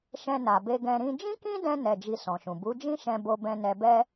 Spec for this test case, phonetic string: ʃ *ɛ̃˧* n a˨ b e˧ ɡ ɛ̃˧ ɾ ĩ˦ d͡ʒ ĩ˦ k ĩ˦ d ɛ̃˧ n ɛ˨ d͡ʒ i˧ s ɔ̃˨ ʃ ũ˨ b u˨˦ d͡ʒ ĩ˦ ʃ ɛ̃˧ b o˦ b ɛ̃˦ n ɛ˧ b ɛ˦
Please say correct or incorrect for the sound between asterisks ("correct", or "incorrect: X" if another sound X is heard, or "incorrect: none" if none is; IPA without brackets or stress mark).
correct